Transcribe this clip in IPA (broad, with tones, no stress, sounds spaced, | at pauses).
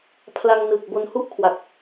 pʰ l a˧ ŋ n ɯ˨˩ k̚ b o˧ n h u˥˩ ʔ kʰ w a˨˩ k̚